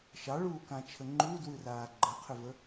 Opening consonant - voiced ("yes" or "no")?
no